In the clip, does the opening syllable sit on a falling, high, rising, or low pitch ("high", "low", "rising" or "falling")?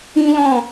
high